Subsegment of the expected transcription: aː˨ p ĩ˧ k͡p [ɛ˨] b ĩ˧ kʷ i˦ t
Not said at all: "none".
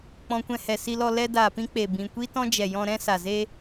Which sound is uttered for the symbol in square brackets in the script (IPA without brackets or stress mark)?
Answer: e˨